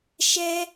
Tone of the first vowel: high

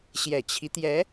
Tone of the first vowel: low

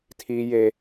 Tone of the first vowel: high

